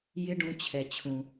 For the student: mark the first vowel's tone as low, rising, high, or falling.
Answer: high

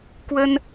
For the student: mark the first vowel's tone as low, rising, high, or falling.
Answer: high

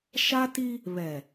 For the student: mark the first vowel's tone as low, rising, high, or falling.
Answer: high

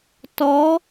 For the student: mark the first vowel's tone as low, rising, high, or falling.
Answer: rising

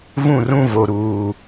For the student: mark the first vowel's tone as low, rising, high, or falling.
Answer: falling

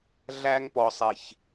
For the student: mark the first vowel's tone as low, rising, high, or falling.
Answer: high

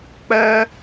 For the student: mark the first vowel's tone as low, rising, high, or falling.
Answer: high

